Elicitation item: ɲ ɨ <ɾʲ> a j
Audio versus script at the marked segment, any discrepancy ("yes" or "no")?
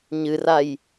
yes